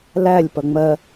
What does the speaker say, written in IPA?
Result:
l æ lʲ p ʌ ŋ͡m ɜ

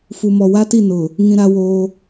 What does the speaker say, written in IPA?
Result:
f u˨ m ɔ˨ w a˦ t i˦˨ n ʊ˨ | ŋ ĩ˦ ɾ a˦ w oː˦

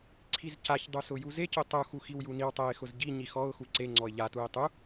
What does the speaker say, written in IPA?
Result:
ǀʰ i z c a ç dˤ u s ʊ j u z e c ʊ tˤ u x u x i w j u n i w tˤ ɛ ɪ̯ x ʊ z ɟ i ɲ i x ɔ ʊ̯ x u ǀ e ŋ͡ǀ ɔ ɪ̯ ʎ a t u ɪ̯ tˤ u

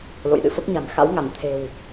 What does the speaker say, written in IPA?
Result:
l o̰˧˨ j ɗ ɨ̰˧˨ f ə˦˥ p̚ ɲ a̤˨˩ n x a̰˧˥ w ŋ a˧˩ n t̪ʰ e̤˨˩ w

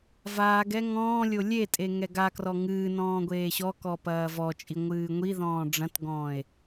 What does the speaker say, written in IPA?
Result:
v aː ɡ ɛ ŋ ɔ̃ː lʲ o lʲ e tʼ e ŋ ɛ ɡ a k r ɔ ŋ ɨː n ɔ̃ː ɡʷ eː ɕ ɔ k ɔ p ɐː v ɔ t͡ʃʼ i ŋʷ ɨː ŋʷ i ð ɔ̃ː ɖ͡ʐ ɐ̃ t ɡ ɔ̃ː e̯

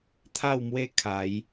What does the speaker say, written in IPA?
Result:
t̪ʰ a˥˧ w m w e˦ kʰ a˨˦ j

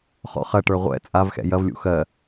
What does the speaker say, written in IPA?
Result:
χ ɔ̰ χ ɐ ʈ ə˞ ʁʷ ɛ̰ t͡sʼ a v x ɛ̰ j ɐ v lʲ ṵ x ɜ

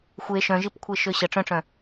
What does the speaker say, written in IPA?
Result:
xʷ e ʃ œ̃ ʒ i p kʷʰ e ʃ ø ɕ ə ʈ͡ʂ œ̃ ʈ͡ʂ œ̃

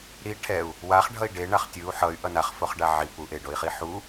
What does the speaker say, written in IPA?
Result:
ɾ i ʈʰ ɛ u̯ | w a χ ɖʱ ʌ i̯ ɖ e ɳ a χ tʲ ɯ u̯ ħ ʌ y̯ ʔ ʌ n a χ f o χ ɖ a ʕ i p u ʔ e ɖ o i̯ χ i ħ u

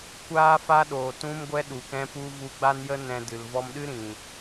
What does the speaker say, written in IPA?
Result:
kʷ aː˦ f a˦ ɗ oː˨ t ũ˦ m ɡʷ ɛ˦ ɗ u˨ k ɛ̃˦ p u˦ v u˧ ɡ͡b a˦ n j ə˦ n ɛ̃˧ d ɨ˨ l v ɔ˧ m ɗ ɨ˦ ɾ ĩ˨

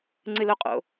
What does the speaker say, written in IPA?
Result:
ŋ͡ǀ ɨ l o qʼ o̰

